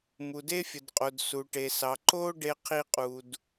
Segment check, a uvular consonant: present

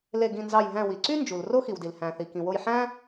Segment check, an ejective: absent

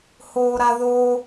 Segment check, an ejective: absent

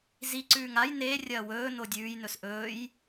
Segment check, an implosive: absent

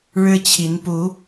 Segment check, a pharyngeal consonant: absent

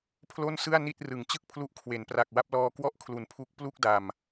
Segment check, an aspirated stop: present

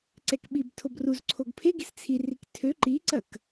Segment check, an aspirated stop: present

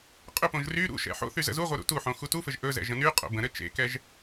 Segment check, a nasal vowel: present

